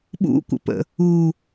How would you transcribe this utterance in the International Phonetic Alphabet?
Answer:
ɓ ṵ kʷ ə̰ p ə̰ | u

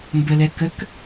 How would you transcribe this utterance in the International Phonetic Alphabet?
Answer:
m b ə l ɛ k ə k

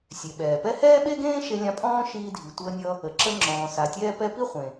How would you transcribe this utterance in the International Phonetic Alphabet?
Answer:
sʲ e˩ ɓ ɛː˩ p ɛ˥ h ɛː˥ ɓ e˥ ɡ ẽː˥ ʃ e˧ lʲ ã˧ pʼ ɔ̃ː˥ ʃ iː˧ dʱ i˩ tʷ əː˧ nʲ ʌ˧ | ə˩ ǁ ə˧ ŋ͡ǁ ɔ̃ː˩ s a˩ tʲ ɛː˧ p ɛ˧ p i˥ χʷ ẽ˩

